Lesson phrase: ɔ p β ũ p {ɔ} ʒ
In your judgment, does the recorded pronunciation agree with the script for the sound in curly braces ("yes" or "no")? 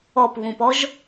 yes